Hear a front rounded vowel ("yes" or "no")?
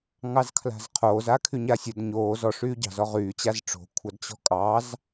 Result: yes